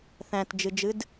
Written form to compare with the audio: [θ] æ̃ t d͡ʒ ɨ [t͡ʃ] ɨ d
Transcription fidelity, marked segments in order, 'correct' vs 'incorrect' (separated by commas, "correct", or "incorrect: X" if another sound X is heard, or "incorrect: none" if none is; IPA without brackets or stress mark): correct, incorrect: d͡ʒ